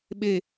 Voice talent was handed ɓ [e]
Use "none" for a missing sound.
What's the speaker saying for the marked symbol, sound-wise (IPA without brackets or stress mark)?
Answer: e